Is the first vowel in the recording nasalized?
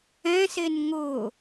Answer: yes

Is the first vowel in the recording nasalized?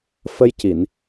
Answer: no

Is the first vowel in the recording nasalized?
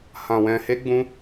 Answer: yes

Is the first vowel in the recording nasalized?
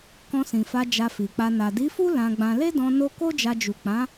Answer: yes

